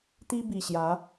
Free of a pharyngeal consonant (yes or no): yes